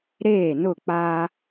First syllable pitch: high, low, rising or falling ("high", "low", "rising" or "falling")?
falling